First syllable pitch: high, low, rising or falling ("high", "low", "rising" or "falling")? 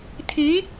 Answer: rising